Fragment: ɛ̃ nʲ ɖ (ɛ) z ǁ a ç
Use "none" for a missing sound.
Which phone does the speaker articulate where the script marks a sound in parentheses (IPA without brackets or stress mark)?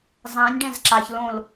ɛ̃